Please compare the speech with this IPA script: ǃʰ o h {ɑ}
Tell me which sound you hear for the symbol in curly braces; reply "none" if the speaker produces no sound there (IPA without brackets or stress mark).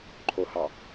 ɑ